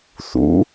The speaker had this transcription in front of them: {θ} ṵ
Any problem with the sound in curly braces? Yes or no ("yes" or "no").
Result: no